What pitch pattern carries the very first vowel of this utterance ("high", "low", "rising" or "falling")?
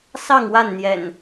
falling